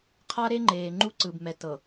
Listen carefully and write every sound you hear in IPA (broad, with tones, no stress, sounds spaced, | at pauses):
qʰ a˦ ɾ e˦ ŋ͡ǃ eː˨ ŋ͡ǃ u˦ ǀ ɯ˨ b m ɛ˨ t ɤ˨